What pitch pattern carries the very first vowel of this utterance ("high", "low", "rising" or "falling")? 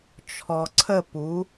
low